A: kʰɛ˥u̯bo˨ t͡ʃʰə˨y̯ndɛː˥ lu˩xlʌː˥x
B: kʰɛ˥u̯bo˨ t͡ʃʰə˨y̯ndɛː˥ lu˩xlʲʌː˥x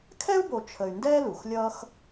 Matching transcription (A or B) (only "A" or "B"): B